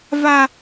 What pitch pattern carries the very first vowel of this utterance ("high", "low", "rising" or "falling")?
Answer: high